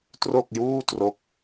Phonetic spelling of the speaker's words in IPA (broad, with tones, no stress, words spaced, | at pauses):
tro˥˩k̚juː˥˩tro˦˥k̚